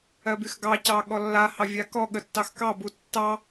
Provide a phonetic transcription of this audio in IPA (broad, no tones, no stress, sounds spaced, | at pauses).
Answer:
ɜ b y x ɡ ɑ c ɑ ɠ ɔ lː a h ɑ vʲ a k ɔ ɠ ə tː ɑ x k ɑ b u tː ɑ